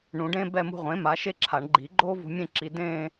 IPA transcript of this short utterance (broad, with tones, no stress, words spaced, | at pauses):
ɳũ˨˩˦ɖẽː˥ bɛ˥˧mṳ˥˧ ʁʷẽː˩˥ ma˩˥ʃe˥ǁʰa˨˩˦ɳ ɡ͡ǃi˨˩˦ ɡ͡ǃoː˥vṳ˧ mʲẽ˥˧ǁi˧ dẽː˥˧